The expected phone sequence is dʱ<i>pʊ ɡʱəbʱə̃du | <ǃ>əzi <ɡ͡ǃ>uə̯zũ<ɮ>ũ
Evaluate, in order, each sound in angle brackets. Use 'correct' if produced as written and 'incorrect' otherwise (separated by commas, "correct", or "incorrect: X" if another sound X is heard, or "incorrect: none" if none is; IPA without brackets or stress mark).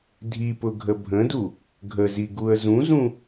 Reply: correct, incorrect: ɡʱ, incorrect: ɡ, incorrect: z